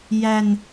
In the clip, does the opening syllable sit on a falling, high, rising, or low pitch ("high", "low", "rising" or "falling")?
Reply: low